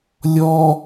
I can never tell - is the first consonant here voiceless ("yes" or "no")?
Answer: no